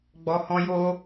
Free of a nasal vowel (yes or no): no